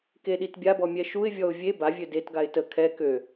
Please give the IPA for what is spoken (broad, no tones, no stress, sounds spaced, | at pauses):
k e ɗ i t bʲ a b ɔ mʲ ɛ ʃ u ɪ̯ vʲ ɔ ʊ̯ vʲ e b a vʲ ø d e t ɡ a ɪ̯ t ə kʰ ɛ k ø